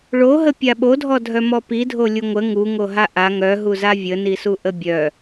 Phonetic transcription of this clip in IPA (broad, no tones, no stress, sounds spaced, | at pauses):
ɭ o ɦ ə pʲ a ɓ o dʱ ɔ dʱ œ m ɔ p i dʱ o lʲ u ŋʷ ə ŋ u ŋ o ɦ a ʔ a ŋ œ ɦ u z a vʲ ə n i s u ʔ ə bʲ œ